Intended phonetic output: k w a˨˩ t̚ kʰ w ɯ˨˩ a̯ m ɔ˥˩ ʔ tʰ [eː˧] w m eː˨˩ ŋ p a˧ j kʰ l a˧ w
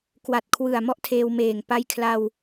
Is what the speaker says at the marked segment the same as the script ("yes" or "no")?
yes